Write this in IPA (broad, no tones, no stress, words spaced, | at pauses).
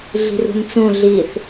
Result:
ɮi̤rṳnt͡sũ ɮiθ